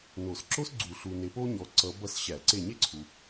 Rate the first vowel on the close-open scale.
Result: mid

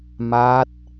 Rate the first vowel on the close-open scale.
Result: open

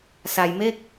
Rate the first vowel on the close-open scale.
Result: open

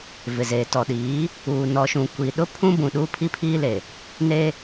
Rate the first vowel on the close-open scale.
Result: close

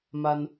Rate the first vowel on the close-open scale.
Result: open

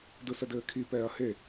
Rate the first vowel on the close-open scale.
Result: close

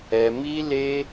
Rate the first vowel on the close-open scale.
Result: mid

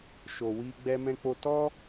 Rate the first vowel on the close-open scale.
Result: mid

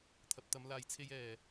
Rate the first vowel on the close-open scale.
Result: open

